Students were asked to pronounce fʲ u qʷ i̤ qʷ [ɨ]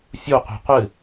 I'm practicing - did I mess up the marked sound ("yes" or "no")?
no